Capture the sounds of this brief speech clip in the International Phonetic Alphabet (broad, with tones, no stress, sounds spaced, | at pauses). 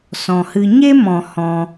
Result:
s ɔ̃˧ h ɨ˦ ɲ e˦ m ɔ̃˧ h ɔ̃˦